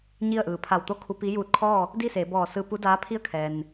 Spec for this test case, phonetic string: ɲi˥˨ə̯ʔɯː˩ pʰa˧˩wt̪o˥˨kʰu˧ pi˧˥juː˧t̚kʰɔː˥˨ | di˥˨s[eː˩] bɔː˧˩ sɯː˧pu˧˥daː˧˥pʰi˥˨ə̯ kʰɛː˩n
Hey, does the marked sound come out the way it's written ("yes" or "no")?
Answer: no